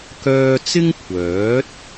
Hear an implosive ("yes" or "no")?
no